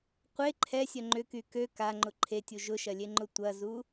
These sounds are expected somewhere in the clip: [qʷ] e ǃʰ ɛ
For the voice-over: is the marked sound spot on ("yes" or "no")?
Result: yes